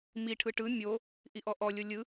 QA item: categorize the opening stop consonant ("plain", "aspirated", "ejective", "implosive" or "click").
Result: aspirated